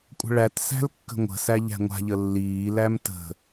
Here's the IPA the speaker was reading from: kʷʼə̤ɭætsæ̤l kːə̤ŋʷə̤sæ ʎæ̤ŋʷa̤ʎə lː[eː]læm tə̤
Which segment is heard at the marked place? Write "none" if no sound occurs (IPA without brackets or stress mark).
iː